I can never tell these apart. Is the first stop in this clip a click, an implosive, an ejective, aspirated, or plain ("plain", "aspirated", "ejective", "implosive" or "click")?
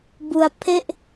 plain